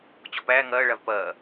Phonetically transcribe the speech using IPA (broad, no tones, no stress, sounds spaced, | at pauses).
t͡ɕ ɔ p æː ŋ ɐː ɭ a v p ɐː